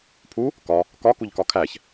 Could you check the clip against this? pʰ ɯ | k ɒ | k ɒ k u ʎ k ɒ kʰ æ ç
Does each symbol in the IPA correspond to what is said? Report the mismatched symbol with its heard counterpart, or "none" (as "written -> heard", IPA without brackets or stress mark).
ɯ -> u